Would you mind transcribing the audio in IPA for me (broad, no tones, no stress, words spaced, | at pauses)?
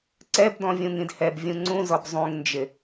ǀɛbdɔ̃ vʲũŋĩdhɛb vʲũŋ͡ǀũzɔb zˤũŋnd͡ʒɪ